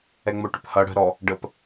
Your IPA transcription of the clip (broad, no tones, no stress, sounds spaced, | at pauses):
ɛ ŋ͡m o ʈ ʏ p h ʌ ɽ ə̤ ɾ ɔ | ɖ ə p